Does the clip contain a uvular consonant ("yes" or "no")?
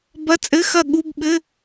no